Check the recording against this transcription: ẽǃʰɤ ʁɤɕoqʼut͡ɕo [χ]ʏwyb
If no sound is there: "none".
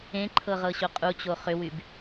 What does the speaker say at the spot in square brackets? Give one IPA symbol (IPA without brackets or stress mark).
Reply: χ